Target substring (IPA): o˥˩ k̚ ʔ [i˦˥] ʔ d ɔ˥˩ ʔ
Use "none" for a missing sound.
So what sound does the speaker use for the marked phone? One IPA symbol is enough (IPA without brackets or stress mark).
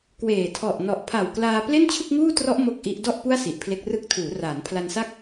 i˦˥